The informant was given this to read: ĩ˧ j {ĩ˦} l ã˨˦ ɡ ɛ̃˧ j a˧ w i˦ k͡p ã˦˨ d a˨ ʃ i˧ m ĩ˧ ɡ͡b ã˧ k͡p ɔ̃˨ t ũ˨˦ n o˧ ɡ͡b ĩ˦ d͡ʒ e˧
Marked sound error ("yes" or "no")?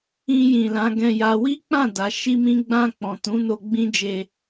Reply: yes